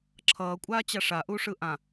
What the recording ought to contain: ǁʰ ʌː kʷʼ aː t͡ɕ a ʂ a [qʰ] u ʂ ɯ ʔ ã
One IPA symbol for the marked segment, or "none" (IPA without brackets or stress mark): ʔ